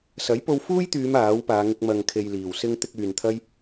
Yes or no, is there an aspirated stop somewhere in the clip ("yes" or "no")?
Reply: yes